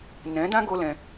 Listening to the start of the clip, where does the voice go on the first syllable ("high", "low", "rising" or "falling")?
rising